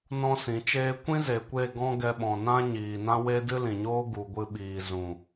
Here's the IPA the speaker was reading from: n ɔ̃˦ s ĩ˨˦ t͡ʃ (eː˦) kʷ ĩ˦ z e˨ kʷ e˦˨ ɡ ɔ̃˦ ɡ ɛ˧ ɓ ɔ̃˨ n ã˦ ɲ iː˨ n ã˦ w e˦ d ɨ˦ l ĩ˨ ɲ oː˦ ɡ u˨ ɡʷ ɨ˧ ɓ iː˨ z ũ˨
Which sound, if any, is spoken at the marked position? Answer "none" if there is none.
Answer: eː˦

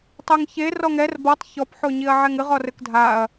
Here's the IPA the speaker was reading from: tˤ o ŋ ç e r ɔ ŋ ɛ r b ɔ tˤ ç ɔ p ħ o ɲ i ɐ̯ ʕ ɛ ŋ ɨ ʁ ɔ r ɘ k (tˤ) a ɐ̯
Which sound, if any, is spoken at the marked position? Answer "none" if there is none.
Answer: dʱ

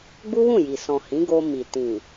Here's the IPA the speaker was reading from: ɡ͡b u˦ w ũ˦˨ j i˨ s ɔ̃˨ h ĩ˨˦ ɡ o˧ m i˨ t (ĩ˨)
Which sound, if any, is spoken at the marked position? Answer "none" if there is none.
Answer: ĩ˨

